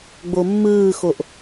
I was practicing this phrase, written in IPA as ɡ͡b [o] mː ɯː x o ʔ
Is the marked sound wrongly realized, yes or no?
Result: no